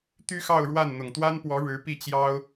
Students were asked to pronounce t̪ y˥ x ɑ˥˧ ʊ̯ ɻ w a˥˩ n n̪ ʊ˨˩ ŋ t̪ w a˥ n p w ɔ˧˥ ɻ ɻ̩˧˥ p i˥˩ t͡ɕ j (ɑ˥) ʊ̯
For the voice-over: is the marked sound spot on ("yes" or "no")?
yes